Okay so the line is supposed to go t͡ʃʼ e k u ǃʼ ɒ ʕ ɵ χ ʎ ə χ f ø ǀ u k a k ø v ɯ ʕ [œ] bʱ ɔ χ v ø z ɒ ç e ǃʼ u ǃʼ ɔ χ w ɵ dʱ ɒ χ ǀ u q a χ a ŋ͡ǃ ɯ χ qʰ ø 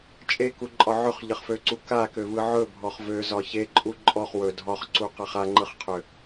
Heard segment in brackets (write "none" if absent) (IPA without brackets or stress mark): ɵ